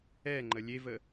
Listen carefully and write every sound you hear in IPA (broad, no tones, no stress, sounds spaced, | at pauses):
ɛ ŋ͡ǃ ə lʲ e v ə